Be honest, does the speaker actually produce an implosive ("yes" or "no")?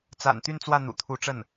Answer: no